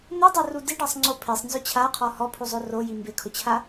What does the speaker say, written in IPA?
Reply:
n̪ ɛ dˤ o r u d i ɖ a sˤ ŋ͡ǀ o pʰ e sˤ n z ʊ t͡ɕʰ a qʰ ɔ h ɔ pʰ u zˤ o r o j i m b ɪ kʰ ʊ t͡ɕʰ a

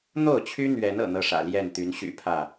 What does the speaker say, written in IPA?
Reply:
n̪ o˥˨ ʊ̯ t͡ɕʰ y˦ n̪ ɥ ɛ˨˦ n ɤ̰˨˩ n̪ ɤ˥˨ ʂ ä̰˨˩ l j ɛ˥˨ n t̪ y˨˦ n ɕ y̰˨˩ pʰ ä˥˨

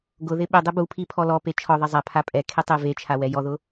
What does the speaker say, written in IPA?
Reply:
ɡ ʊ ð ɪ ɓ ɪ dˤ ɪ b u pʰ i pʰ ɔ l ɔ p e t͡ʃʰ ɔ ðˤ e zˤ a pʰ a pʼ ɛ kʰ e tˤ e v e t͡ʃʰ a w ɛ j ɔ ð ʊ

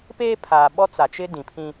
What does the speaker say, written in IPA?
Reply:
p eː˦ pʰ aː˨ ɓ ɔ˦ t͡s a˨ t͡ʃ ɪ˦ d ĩ˨ pʰ ĩ˦

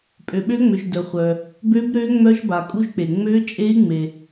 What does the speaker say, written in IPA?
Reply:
pʼ ø˨ ɓ ø˦˥ ŋ͡m ø˨ ʒ d œ˨ χʷ œ˨ | b ø˦˥ b ɾ ø˦˥ ŋ͡m œ˦˥ ʒ b a˨ kʼ u˦˥ ʒ k͡p e˨ ŋ͡m ø˦˥ t͡ʃʼ e˦˥ i̯ ŋ͡m e˨

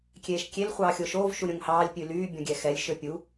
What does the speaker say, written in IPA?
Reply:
kʲ eː ʃ kʲ e l χʷ ɑː xʲ o ʃ oː v ʃ u ɾʲ õ ŋ h ɑː lʲ pʲ ʉ l yː bʲ ɔ̃ ɡʲ ɛ x ɛ lʲ ʃ ø pʲ u

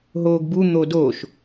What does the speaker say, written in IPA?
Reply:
ɦ oː ɡ b u n̪ o d oː ʃ

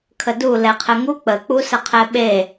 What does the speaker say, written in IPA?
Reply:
kʰ ə d u l ɛ qʰ ɘ ŋ u k͡p ə k͡p u s ə qʰ ɛ ɓ e

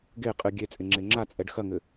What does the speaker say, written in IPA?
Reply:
ɡ e qʼ ɨ ɡʲ e t͡sʼ e ŋ͡ǁ e ŋ͡ǁ a t͡sʼ ɛ ɖ x ɐ ŋ ɘ

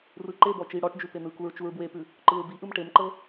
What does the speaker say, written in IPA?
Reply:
r ɯ ǃ e b ɔ t͡ʃ i ɽ ɔ ʈ d͡ʒ ʉ p e n ɯ k u ɹ t͡ʃ u ɹ b w e p ʉ | ǃ ɯ ɹ b i ʔ ɯ m ʈ e m ǃ ɤ

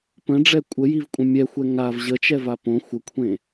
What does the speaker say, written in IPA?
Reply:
p ə̃ ɖ͡ʐ ɛ kʷʼ ə j i v kʷʼ ə̃ mʲ ɛ xʷ ɛ ŋ a v ʑ ə t͡ʃ ɛ v a p õ xʷ ə kʷʰ ẽ

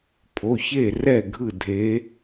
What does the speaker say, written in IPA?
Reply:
pʰ o˩˧˩ ç e˥˨ r ɛ˥˨ ɡʱ ɯ˥˨ dʱ e˨˦

